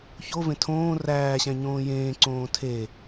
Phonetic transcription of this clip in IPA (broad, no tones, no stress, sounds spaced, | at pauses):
ç o v ẽ tʰ õː r æː ɕ æ̃ ɲ õː j ẽː ǀ õː tʰ e